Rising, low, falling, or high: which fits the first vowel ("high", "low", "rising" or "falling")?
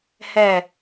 low